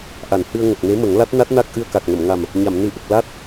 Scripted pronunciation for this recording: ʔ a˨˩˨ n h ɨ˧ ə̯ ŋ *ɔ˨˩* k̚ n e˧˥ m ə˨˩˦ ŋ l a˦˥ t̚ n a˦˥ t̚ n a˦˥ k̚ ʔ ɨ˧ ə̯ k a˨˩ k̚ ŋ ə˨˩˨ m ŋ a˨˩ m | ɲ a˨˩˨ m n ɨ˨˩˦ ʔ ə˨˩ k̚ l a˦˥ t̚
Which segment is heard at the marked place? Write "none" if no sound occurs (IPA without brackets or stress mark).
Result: ə˨˩